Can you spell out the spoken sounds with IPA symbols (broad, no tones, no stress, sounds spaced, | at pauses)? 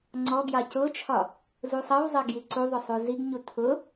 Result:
ŋ͡ǀ ɔ ɡ j ɑ c ʊ t͡ʃʰ ɒ | z u sˤ ʌ w zˤ ɜ ɡ j i ǀ u ðˤ ʊ sˤ u z i ɡ ɲ u tʰ ʊ